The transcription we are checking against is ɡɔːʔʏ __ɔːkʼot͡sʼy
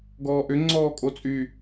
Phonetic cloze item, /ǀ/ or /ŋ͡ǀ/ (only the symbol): ŋ͡ǀ